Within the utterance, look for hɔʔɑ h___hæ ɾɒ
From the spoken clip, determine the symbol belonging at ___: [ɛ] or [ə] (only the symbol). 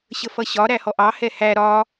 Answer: ɛ